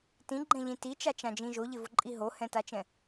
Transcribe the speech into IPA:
t ĩ ɡ͡ǃ ɛ̃ ʎ ĩ t i t͡ʃ a t͡ʃ ã d͡ʒ ĩ ʒ o ʎ ɪ v ʊ ǃʼ i ɦ o h ɛ̃ t a t͡ʃ ɛ̃

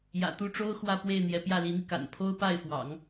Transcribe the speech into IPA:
j ä̰˨˩ t̪ u˥˩ ʈ͡ʂ o˥ ʊ̯ x w ä˥˧ p w e˥˩ ɪ̯ n̪ j ɛ˧˥ p j ä˥˩ l i˧˥ n̪ i˧ k a̰˨˩ n pʰ o˥ ʊ̯ p a˥˩ ɪ̯ f w ɑ̰˨˩˦ ŋ

